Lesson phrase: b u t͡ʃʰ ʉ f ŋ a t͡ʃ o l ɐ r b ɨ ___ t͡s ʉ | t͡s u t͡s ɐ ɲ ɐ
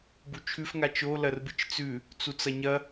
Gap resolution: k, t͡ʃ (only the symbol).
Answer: t͡ʃ